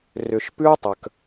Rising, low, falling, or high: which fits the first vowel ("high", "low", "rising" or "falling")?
low